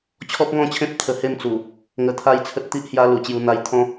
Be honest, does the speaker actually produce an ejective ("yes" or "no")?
no